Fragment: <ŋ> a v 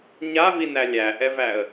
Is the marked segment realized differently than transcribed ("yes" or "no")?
yes